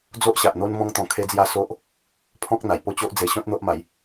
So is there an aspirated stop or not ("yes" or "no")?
yes